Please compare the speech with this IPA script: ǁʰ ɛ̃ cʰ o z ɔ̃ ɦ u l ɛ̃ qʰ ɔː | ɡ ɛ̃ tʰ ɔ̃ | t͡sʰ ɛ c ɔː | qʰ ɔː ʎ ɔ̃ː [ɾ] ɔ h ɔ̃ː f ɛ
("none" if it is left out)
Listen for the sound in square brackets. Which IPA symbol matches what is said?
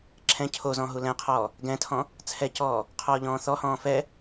θ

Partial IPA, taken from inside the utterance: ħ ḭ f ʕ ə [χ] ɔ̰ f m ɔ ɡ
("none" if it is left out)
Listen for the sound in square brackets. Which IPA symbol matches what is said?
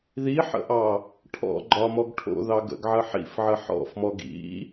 ħ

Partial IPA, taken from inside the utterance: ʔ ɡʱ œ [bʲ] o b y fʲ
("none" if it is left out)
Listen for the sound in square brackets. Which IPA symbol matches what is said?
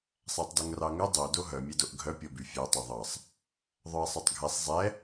pʲ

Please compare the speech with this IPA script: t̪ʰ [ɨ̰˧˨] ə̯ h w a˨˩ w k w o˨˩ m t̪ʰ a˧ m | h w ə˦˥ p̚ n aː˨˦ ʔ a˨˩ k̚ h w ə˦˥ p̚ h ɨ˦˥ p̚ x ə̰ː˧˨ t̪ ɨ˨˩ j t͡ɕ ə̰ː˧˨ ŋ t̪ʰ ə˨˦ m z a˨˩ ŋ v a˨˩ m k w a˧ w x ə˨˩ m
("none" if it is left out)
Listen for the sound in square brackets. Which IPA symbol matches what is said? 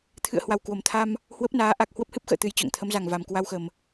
ɨ̰˧˨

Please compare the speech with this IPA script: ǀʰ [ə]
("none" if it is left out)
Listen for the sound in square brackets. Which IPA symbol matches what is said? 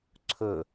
ɵ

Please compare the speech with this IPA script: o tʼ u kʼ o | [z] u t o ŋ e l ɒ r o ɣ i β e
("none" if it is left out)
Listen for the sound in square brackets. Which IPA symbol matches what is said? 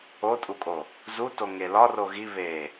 z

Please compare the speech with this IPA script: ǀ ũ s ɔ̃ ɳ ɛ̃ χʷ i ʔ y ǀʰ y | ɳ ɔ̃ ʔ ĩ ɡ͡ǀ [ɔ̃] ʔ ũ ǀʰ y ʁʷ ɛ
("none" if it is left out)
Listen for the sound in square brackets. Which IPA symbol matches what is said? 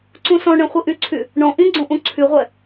õ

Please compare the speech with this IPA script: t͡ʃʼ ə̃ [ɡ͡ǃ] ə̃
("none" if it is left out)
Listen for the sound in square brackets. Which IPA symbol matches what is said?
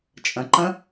ǃ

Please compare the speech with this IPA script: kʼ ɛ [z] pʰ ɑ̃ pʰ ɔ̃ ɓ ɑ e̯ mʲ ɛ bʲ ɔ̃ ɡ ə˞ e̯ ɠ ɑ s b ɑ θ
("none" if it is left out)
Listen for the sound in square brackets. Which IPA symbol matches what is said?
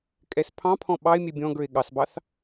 s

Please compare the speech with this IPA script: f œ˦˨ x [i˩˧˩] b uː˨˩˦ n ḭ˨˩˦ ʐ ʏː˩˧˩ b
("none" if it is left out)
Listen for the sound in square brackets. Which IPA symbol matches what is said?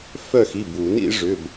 i˩˧˩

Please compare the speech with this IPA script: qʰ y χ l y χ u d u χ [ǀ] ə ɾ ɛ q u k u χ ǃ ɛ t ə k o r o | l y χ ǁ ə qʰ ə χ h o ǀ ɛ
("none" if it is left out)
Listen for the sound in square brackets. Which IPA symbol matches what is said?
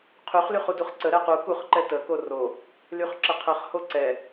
ǀ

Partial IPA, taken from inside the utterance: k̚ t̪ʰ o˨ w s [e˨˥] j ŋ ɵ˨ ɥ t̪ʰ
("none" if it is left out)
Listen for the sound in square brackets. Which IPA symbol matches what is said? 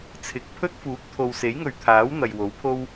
e˨˥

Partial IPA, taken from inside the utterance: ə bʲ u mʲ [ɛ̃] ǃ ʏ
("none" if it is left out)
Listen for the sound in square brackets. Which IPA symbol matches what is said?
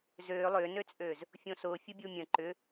ə̃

